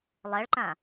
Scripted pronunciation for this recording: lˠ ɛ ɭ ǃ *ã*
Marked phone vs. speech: correct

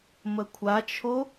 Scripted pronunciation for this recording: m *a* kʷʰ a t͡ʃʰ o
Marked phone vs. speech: incorrect: ə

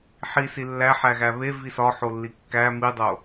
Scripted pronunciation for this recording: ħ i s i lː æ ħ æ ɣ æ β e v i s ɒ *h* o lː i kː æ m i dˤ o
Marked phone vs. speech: incorrect: ħ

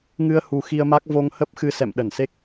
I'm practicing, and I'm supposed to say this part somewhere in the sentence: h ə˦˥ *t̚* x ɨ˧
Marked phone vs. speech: incorrect: p̚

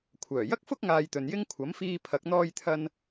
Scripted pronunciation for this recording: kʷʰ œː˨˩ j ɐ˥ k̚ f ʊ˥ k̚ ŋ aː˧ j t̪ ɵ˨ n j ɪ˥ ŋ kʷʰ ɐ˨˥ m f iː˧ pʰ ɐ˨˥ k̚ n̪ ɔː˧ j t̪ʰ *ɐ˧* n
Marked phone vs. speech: correct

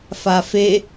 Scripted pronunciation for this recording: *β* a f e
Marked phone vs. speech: incorrect: f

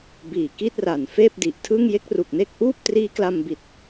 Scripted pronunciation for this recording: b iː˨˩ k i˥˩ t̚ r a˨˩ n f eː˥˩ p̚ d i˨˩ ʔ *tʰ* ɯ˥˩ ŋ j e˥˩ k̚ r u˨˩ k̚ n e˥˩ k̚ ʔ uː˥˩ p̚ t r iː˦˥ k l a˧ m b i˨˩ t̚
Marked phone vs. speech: correct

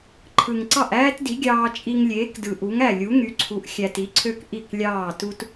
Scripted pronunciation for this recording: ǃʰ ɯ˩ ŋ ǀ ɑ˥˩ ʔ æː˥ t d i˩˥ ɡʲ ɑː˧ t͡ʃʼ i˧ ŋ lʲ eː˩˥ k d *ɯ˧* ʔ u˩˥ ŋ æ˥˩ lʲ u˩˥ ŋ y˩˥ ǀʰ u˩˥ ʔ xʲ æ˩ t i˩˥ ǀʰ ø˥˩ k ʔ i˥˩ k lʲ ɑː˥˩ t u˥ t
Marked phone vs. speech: incorrect: ɯ˩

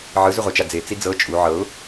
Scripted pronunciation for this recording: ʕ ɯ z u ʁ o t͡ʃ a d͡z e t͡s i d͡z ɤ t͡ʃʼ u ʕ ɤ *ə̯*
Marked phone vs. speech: incorrect: ʊ̯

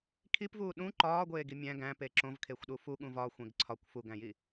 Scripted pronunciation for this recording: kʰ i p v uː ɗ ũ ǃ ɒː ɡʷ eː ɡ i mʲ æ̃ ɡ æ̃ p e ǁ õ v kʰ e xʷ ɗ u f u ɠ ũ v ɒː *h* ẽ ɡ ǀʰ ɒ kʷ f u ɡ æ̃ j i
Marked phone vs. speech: incorrect: xʷ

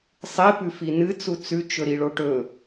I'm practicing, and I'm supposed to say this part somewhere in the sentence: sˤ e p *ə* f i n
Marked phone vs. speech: incorrect: ʉ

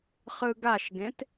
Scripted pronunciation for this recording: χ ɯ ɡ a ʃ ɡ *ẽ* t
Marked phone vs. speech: correct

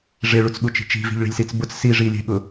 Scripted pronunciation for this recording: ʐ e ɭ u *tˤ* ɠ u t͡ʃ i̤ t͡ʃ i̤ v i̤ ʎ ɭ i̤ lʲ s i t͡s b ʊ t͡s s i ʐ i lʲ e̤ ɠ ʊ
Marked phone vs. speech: incorrect: t͡s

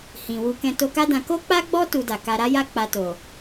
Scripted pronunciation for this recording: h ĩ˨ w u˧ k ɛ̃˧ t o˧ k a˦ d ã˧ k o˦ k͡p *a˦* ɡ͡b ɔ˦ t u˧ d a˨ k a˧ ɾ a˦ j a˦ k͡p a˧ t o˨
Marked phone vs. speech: correct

